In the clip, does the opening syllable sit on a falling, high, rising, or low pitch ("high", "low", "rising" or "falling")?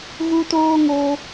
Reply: high